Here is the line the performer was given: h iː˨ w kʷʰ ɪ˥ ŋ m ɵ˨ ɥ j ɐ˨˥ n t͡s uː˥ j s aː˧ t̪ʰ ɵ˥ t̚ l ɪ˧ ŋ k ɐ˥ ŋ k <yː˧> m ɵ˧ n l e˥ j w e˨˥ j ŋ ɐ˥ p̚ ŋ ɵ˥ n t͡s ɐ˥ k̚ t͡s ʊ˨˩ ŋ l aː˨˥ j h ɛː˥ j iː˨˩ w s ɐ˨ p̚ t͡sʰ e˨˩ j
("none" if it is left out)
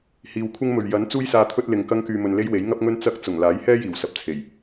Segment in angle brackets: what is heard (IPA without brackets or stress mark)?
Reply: yː˧